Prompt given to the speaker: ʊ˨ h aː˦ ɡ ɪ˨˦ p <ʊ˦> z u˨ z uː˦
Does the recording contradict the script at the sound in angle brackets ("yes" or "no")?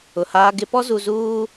yes